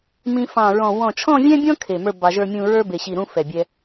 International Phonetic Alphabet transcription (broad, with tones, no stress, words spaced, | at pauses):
mĩ˧fɑ̃˧˩ɹɔ̃˧˩ wɔ̃˧˩t͡ʃʰɔ̃˥˧vʲɛ̃˥bʲɔ̃˥ kʰe˧˩mə˞˥˧ bɑ˧ʒə˞˥˧mʲũ˥˧ ɹə˞˥be˧˩ɕi˧˩ ɾũ˥ fɛ˧˩ bʲɛ˥